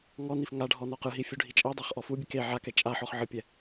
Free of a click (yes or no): yes